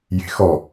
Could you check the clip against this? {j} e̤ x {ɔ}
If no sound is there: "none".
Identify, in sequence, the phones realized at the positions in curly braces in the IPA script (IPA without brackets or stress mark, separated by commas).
j, ɔ